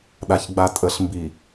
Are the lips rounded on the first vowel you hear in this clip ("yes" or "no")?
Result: no